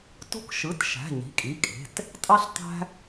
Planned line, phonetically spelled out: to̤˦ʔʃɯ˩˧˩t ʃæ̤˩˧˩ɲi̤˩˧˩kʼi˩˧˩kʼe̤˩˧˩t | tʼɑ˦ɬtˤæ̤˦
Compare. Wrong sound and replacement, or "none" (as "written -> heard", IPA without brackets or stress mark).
ʔ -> k